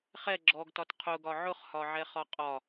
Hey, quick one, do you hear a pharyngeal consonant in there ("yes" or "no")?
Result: yes